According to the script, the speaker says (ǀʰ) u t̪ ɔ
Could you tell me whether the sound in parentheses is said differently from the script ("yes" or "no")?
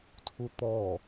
yes